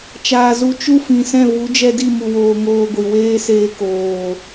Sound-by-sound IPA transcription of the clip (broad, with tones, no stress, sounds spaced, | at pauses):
t͡ʃ aː˨ z u˧ t͡ʃ u˧ f ĩ˨ s ɛ̃˦˨ v u˨˦ d͡ʒ ɛ˧ d i˦˨ m u˨ w oː˨ ŋ oː˧ ɡʷ i˨ w eː˦ s eː˧ k oː˨